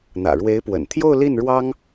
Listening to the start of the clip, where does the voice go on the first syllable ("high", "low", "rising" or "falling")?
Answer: low